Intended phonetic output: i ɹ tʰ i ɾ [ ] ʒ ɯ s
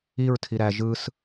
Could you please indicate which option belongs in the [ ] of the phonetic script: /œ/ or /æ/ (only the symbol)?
æ